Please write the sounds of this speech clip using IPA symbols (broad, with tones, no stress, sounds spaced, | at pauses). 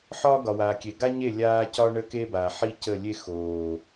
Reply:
ħ ɒː˦ ɡ ɒ˨ w aː˨ kʲ e˨ ɡ a˦ ɲ e˦˨ lʲ aː˦ c ɒ˦ ɳ ə˦ k e˦ b a˨ ħ i˦ c ə˦˨ lʲ e˦ x oː˨